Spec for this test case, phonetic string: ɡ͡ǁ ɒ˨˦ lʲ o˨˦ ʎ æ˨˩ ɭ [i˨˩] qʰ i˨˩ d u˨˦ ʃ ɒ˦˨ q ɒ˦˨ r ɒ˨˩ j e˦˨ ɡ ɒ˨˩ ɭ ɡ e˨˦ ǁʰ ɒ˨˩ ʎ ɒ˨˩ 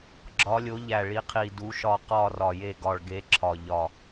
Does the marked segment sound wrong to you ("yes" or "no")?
yes